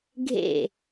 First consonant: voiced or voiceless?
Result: voiced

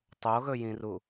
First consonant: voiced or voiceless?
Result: voiceless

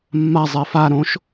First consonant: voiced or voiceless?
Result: voiced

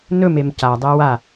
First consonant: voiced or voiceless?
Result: voiced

